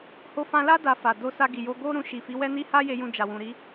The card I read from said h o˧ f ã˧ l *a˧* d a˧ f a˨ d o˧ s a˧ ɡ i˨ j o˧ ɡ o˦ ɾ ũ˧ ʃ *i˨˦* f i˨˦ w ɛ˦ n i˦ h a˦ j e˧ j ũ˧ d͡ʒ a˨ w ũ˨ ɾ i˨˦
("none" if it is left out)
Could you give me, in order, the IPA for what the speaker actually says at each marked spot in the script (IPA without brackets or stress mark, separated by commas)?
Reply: a˦, i˨